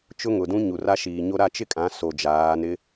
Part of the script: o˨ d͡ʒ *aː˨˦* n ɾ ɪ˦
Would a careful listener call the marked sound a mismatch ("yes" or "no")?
no